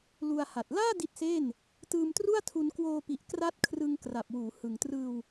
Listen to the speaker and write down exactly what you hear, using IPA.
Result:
l u˧ a̯ h a˨˩ t̚ l aː˥˩ d i˦˥ t̚ s e˥˩ n | t ɯː˧ m t r u˥˩ a̯ tʰ u˧ n k w oː˧ p i˨˩ ʔ k r a˦˥ t̚ kʰ r ɯ˧ ŋ k r a˨˩ p̚ w uː˩˦ h ɯ˨˩ ŋ t r ɯː˧ w

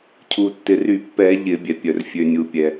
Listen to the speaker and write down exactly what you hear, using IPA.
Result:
cʰ u˩ tː ɪ˩ r y˧˩˧ pː ɛ˧˩˧ ʎ ɪ˧˩˧ bʲ ɛ˩ pʲ œ˩ r fʲ ø˩ nʲ u˩ pʲ ɛ˩

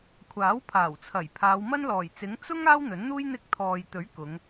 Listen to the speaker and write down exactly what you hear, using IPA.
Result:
kʷʰ aː˨˥ w pʰ aː˨˩ w t͡sʰ ɐ˨˩ j pʰ aː˨˧ w m ɐ˥ n l ɔː˨˩ j t͡s ɪ˨˥ ŋ t͡s ʊ˥ ŋ aː˥ w n̪ ɵ˨˥ n n̪ uː˥ j n̪ ɪ˧ k̚ t̪ʰ ɔː˨ j t̪ ɵ˨˥ ɥ k ʊ˨˧ ŋ

